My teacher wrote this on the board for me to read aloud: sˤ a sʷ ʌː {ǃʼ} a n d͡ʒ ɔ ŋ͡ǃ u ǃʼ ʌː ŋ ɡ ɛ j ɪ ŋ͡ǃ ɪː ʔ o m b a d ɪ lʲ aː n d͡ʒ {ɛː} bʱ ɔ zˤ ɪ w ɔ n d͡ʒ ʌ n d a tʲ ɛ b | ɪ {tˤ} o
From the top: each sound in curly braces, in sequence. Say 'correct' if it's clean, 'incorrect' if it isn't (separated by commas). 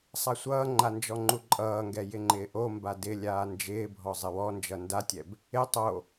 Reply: incorrect, incorrect, correct